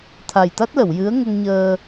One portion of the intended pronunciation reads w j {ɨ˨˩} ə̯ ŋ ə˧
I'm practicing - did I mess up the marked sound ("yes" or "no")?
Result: yes